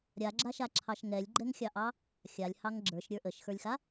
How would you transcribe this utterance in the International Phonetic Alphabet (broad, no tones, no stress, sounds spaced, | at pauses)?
ɾʲ a ɡ͡ǁ a ʃ a ǁʰ ɑ ʃ ŋ ɛ lʲ ɡ͡ǃ ɛ ŋ xʲ ɑ ʔ ɑ | xʲ a lʲ h ɑ ŋ ɡ͡ǁ ə˞ ʃ ɾʲ ə˞ ʔ ə ʃ x ə˞ lʲ x a